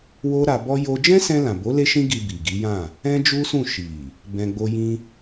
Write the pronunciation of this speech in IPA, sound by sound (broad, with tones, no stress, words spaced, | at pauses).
wo˦ɾa˧bɔ˦jo˦ d͡ʒɛ̃˦sɛ̃˧lã˨bo˨˦ le˦ʃĩ˦ɡi˧ bi˨ɡi˨˦jã˦˨ | ɛ̃˦d͡ʒu˦sũ˦˨ ʃi˨ | bɛ̃˧ɡ͡bo˦jĩ˦